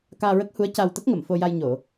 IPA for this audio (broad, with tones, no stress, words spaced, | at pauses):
kaː˧ɹə˦˥k̚hu˧˥ə̯ ca˧w t̪ə˦˥k̚ŋə˨˩˨mfo˧ja˧j ɲo˨˩˨